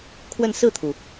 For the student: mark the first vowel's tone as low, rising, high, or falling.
falling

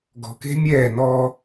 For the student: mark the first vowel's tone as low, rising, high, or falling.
low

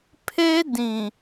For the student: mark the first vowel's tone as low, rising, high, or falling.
high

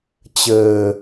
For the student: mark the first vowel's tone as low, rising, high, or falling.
low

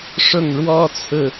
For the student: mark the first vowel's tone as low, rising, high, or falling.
falling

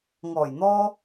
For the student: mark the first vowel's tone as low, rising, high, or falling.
low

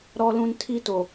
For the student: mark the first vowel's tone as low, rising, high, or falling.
low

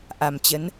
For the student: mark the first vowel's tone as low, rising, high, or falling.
low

